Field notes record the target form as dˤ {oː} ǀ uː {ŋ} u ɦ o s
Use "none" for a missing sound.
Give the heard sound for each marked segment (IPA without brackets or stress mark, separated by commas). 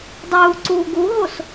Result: uː, ɡ